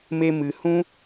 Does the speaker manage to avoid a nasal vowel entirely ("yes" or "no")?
no